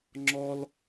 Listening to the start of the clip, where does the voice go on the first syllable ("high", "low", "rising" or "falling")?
high